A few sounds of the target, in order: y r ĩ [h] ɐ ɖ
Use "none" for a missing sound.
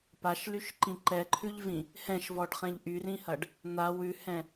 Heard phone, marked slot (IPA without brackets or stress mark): h